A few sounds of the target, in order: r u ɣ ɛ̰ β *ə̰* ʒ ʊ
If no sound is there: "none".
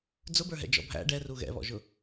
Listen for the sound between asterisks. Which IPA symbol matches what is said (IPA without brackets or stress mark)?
ɔ̰